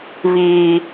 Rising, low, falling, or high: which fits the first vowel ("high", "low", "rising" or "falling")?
high